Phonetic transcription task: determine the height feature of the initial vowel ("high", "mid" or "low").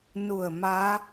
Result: high